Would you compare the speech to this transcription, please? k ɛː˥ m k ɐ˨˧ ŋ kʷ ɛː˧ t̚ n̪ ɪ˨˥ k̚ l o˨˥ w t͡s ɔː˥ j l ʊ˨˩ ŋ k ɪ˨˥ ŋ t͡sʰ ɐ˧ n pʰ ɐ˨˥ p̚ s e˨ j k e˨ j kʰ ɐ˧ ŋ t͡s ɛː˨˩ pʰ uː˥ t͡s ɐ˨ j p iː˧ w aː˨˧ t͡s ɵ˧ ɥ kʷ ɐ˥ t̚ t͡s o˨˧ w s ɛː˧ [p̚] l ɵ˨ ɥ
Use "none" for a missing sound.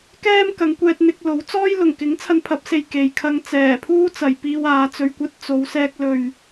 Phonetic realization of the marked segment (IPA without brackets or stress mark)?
k̚